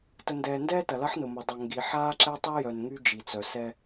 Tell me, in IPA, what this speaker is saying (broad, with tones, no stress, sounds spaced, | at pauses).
t ə˨ n d ɛː˨ n d ɛː˦ t ɐ˨ l ɐ˦ ħ n ʊ˨ m ʊ˨ dˤ ɐ˨ ŋ ɡ i˨ ħ aː˦ ǁ ɛ˦ tˤ i˦ j œ˨ n ŋ y˦ d͡ʒ i˨ t͡s œ˨ s ɛ˦